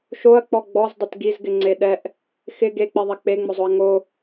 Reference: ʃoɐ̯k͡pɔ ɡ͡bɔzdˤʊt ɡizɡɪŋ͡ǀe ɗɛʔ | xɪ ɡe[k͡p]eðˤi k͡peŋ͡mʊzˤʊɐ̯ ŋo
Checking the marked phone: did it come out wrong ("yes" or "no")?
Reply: no